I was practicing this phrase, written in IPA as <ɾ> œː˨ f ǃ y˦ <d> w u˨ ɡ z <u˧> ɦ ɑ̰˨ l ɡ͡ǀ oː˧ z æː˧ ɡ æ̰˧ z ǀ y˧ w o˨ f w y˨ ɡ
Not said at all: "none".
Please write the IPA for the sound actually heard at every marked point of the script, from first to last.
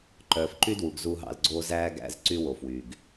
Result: ǃ, d, u˧

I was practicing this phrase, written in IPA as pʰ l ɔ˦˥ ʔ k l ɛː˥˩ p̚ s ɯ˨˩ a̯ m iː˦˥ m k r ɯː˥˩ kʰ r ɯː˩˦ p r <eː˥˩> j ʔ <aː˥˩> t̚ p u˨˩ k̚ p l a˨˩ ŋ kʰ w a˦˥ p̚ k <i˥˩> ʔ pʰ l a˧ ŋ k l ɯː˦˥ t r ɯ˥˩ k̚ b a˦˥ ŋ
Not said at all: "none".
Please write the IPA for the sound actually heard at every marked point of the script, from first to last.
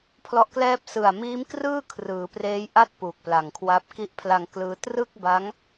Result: eː˦˥, a˥˩, i˦˥

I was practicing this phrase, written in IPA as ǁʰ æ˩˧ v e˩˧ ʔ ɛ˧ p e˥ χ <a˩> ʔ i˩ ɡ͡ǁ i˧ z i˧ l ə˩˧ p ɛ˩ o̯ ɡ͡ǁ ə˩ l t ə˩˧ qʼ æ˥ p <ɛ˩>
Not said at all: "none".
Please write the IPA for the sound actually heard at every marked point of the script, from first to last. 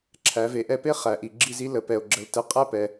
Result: æ˩, ɛ˩

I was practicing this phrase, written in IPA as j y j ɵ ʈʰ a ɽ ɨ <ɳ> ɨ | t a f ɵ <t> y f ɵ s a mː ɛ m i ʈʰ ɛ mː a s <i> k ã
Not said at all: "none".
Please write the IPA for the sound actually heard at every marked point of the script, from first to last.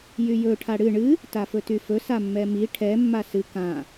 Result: ɳ, t, ɨ

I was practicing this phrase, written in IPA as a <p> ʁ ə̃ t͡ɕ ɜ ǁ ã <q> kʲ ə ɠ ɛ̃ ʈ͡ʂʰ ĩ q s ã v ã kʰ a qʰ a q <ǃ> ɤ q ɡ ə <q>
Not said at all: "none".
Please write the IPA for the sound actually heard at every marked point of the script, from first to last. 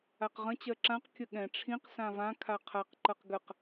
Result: q, q, ǃ, q

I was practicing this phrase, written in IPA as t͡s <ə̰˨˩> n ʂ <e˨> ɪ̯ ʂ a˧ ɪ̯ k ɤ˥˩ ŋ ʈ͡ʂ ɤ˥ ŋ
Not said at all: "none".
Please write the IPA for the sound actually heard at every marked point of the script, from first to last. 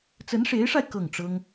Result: ə˧˥, e˧˥

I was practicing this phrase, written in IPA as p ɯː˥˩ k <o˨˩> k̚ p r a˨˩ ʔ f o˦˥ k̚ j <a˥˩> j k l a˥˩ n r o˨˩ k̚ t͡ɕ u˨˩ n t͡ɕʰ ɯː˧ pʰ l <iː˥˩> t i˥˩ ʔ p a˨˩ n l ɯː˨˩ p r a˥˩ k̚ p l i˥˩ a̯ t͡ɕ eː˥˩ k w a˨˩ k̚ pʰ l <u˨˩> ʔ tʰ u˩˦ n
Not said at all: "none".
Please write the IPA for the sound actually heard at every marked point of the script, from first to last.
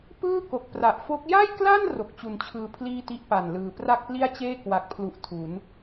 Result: o˨˩, a˥˩, iː˥˩, u˨˩

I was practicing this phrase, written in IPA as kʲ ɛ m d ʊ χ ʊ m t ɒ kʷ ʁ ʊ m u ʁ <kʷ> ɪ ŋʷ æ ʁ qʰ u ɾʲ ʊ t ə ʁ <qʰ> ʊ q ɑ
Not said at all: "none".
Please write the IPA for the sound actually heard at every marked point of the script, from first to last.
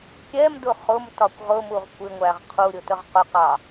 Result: kʷ, q

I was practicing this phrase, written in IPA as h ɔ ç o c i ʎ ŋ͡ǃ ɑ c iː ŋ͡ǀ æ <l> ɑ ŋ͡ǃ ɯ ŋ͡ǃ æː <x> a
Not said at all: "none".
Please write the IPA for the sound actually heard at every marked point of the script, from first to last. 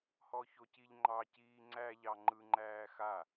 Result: ʎ, x

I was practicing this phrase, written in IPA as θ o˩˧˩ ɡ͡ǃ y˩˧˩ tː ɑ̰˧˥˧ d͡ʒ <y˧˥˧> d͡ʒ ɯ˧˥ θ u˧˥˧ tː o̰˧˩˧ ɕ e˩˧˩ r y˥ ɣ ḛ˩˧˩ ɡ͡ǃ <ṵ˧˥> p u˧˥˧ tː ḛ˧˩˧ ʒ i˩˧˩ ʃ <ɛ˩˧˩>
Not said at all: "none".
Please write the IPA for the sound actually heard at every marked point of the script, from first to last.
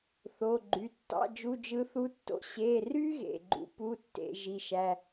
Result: u˧˥˧, ṵ˧˥, æ˩˧˩

